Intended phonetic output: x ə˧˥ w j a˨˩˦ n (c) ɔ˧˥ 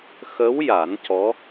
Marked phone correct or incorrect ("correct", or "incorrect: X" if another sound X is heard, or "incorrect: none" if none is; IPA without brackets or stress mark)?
correct